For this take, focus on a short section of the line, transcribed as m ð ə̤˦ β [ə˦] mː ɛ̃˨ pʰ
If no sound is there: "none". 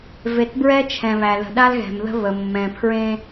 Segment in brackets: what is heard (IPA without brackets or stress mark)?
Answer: ə˨